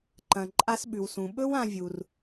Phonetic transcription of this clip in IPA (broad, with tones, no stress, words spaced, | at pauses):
ǃɐ̃˩ ǃʼa˧sɓʉ˩wsũ˩ ɓɵ˥wã˧vʲu˩r